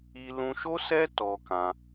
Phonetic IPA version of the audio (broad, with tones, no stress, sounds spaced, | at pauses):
i˦ l ũ˧ ʃ o˦ s ɛ˦ t ɔ˧ k ã˧